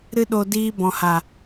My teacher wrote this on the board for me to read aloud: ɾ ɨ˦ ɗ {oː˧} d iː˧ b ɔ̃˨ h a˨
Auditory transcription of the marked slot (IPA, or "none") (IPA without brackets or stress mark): o˧